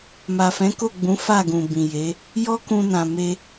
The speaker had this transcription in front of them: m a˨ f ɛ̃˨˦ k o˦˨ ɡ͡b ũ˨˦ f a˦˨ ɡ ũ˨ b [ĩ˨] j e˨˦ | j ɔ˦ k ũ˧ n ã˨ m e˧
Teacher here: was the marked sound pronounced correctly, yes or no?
yes